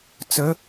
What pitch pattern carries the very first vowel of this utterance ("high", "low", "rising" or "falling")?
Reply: rising